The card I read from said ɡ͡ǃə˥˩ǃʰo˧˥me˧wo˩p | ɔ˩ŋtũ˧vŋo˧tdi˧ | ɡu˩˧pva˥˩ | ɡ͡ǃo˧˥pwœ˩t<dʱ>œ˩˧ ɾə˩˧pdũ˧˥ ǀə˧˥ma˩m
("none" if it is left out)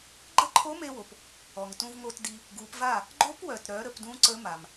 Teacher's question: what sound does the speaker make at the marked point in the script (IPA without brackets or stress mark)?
ɾ